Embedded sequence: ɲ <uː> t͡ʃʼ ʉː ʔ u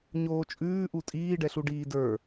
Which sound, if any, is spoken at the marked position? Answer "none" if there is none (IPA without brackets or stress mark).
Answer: oː